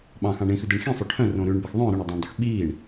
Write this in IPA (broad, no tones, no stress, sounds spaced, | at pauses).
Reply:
ɓ ɑ̃ x ɑ̃ ɳ ĩ x ʉ d e ɳ x ĩ sˤ o ʈʰ œ̃ r õ ɾ ʉ ɳ b ɛ x ðˤ œ̃ ɾ ɵ ɳ ɵ dˤ æ̃ ɳ dˤ i x ɓ iː ɳ